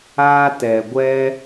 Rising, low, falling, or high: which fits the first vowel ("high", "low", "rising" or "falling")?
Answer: high